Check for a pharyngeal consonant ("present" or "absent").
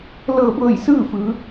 absent